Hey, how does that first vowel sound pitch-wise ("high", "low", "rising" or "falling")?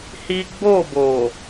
high